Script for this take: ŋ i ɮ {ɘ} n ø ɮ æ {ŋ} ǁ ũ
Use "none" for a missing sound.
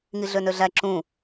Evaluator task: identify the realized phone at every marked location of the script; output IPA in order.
ø, none

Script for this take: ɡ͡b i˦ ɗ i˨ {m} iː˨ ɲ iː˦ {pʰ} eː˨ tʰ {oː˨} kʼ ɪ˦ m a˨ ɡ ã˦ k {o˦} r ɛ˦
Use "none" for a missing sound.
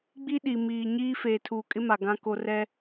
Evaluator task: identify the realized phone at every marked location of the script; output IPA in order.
m, f, uː˨, o˦

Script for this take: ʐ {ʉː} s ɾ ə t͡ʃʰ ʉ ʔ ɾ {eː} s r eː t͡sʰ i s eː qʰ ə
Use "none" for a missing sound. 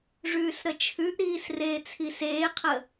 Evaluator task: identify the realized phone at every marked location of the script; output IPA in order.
ʉː, iː

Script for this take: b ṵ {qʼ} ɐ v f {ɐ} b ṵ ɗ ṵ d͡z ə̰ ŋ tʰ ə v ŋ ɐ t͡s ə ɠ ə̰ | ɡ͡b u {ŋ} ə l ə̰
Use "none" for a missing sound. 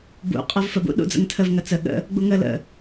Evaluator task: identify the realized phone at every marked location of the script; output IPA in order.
qʼ, ə, ŋ

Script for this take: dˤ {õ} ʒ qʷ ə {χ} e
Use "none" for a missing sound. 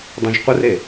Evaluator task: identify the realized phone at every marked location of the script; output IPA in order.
õ, r

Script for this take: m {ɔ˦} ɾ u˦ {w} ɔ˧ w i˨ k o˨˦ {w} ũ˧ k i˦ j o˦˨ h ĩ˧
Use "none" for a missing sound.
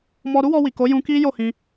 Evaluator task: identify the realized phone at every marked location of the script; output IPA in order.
ɔ˧, w, j

